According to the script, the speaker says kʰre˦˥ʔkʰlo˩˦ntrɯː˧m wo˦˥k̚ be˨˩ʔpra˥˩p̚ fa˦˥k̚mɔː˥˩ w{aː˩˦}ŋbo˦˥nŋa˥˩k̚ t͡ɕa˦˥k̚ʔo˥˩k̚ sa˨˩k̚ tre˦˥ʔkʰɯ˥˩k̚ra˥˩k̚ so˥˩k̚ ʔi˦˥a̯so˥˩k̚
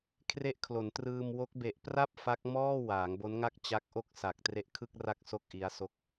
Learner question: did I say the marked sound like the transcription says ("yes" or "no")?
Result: yes